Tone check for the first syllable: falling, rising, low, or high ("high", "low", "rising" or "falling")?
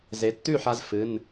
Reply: rising